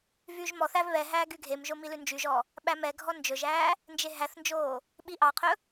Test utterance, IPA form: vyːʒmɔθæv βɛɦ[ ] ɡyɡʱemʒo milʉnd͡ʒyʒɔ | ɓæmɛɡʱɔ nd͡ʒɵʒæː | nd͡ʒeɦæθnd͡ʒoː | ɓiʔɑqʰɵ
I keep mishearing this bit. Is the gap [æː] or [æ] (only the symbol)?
æː